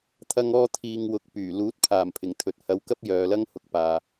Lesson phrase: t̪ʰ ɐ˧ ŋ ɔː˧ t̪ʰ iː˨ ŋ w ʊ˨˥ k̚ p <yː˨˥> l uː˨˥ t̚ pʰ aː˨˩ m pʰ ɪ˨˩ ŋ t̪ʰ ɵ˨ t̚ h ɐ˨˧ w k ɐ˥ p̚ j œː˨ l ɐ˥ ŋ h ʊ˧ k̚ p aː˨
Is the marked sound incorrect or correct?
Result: incorrect: yː˨˩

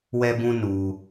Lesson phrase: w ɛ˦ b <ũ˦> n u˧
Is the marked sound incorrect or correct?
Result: correct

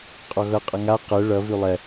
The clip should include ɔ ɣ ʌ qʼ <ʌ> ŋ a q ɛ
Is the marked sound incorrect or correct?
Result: correct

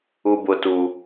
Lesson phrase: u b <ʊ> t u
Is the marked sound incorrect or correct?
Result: correct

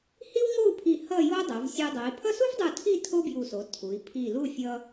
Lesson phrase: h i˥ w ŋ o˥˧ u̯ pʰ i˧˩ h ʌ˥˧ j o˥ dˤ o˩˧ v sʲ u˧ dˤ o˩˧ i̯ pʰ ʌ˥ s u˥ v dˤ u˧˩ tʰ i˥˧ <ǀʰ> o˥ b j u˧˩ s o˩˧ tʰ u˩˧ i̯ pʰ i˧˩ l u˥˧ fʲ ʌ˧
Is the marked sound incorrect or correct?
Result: incorrect: tʰ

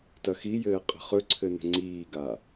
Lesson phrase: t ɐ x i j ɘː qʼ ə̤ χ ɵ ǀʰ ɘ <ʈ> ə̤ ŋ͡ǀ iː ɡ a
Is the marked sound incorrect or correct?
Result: incorrect: n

